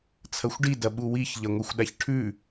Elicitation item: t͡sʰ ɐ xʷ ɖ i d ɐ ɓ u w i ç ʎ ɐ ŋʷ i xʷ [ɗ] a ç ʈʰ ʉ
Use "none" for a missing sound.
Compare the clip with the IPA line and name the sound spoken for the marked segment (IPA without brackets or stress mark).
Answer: ɗ